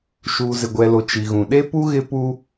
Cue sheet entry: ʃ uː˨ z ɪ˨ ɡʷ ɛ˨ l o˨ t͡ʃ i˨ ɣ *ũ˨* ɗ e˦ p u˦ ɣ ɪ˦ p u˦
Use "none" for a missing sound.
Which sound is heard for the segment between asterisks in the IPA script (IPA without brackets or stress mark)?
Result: ũ˨